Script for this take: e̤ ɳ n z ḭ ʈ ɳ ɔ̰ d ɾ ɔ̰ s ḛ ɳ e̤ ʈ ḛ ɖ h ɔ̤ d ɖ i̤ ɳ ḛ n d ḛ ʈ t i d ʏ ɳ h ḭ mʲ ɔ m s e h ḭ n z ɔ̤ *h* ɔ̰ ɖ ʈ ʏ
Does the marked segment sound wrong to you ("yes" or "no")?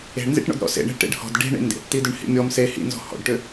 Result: no